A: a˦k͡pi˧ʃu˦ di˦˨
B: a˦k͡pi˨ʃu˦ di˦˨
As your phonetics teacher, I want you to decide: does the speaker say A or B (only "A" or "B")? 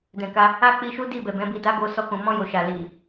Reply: A